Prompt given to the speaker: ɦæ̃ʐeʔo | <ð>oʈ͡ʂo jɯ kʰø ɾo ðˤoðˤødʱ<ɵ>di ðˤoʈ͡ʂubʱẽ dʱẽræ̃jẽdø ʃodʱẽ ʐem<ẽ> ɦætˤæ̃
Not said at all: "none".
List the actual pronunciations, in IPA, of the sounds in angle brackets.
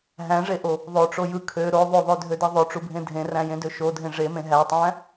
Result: ðˤ, ø, ẽ

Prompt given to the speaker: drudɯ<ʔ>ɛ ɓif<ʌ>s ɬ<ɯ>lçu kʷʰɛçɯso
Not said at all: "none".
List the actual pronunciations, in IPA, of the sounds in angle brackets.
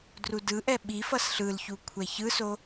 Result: ʔ, ʌ, ɯ

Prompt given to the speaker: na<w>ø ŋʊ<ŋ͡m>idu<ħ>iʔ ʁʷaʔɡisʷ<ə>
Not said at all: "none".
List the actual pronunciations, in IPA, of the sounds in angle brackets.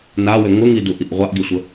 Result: w, ŋ, ʔ, ə

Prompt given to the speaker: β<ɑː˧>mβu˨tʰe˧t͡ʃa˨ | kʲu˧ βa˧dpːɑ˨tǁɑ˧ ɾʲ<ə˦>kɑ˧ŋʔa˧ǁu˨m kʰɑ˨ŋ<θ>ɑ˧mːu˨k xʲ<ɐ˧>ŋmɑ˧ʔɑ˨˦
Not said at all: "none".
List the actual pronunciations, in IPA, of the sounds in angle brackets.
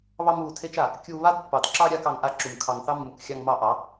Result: ɑ˧, a˦, θ, ɑ˧

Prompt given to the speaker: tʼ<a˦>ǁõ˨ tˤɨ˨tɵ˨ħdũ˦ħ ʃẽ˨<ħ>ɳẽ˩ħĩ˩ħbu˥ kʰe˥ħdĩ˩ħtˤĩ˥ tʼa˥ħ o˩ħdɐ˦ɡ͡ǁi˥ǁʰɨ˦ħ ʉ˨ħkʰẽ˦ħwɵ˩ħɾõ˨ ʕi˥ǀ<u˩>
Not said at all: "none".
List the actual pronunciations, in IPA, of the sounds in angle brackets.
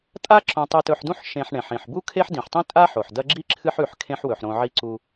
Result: a˦, ħ, u˦

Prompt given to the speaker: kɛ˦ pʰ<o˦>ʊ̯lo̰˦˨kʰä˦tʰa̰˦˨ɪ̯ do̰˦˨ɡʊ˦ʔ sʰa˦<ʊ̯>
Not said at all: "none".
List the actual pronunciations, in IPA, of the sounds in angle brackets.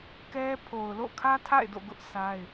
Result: o˨, ɪ̯

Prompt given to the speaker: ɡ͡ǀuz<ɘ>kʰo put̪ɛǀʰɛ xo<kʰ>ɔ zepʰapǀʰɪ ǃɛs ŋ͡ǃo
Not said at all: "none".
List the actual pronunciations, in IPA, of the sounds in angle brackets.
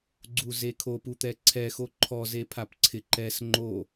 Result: e, ǃʰ

